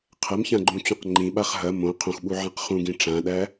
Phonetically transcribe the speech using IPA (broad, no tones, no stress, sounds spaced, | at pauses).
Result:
qʰ ɐ m ç ã ɡ͡ǃ ũ t͡ɕ ũ q ŋ͡ǃ ĩ ɓ a χ ɦ ɐ m õ qʰ õ x ɓ u ʕ ã q χ ũ ɡ ĩ ʈ͡ʂ ã ɗ æ